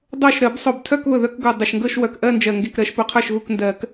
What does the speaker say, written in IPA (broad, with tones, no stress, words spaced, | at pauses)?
dˤo˥˩ʃ ɾɜ˨˩˦bsˤo˨˩btʰœ˥˧kβɵ˨˩ ðœ˥˧kɡo˨˩ dˤə˨˩ʃŋɡɤ˥˧ʃ wœ˨˩kʔɜ˥˧nd͡ʒɜ˨˩ ŋɡe˥˩kɾɜ˨˩˦ʃpɵ˨˩˦qʰœ˥˩ʃ ɣu˥˩kndɜ˨˩˦k